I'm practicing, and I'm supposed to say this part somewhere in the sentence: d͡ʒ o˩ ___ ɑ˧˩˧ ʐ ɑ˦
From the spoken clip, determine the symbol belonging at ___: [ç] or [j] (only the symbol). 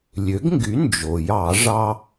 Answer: j